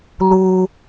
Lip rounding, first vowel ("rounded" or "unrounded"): rounded